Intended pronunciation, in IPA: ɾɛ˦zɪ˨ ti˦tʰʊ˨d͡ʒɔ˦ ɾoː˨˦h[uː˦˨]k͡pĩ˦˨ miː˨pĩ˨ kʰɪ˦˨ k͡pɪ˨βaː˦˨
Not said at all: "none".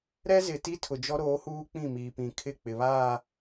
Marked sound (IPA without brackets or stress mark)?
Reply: uː˦